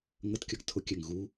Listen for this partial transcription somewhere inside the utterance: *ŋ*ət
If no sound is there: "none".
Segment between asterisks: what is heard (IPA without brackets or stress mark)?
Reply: ŋ